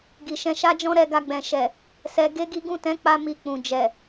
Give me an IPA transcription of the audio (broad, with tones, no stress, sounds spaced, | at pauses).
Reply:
ɡ i˨ ʃ ɛ̃˧ ʃ a˦ d͡ʒ ɔ̃˦ ɾ ɛ˧ ɡ a˧ ɡ͡b ɛ̃˨ ʃ ɛ˨ | s ɛ˧ ɡ e˦ ɡ i˦ ɡ ũ˦˨ t ɛ̃˨˦ k͡p a˧ m i˧ k͡p ũ˨ d͡ʒ ɛ˨